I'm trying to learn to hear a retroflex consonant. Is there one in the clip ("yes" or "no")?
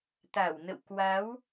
no